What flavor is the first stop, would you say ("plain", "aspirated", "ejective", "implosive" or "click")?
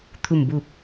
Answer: aspirated